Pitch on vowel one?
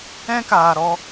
high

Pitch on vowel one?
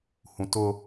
low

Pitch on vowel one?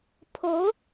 rising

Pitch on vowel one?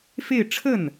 falling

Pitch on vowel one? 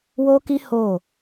high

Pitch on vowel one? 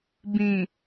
low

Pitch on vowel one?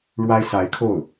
high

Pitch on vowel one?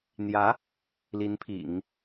rising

